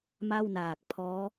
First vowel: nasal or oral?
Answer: oral